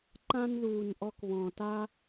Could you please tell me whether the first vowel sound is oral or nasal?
nasal